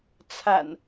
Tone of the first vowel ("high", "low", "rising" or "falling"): low